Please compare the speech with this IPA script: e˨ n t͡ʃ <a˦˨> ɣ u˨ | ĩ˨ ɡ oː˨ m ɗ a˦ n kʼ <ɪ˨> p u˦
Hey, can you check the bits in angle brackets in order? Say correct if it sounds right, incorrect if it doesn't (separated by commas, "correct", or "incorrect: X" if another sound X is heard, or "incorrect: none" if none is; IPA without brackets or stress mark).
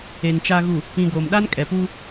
incorrect: a˨, incorrect: ɛ˨